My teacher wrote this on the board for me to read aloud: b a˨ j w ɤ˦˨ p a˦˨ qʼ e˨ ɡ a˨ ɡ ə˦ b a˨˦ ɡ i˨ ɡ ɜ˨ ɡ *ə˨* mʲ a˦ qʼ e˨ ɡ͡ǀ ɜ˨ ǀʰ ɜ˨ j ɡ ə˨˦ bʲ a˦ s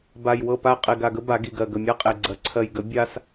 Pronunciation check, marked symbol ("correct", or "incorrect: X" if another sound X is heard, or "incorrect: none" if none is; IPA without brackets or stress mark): correct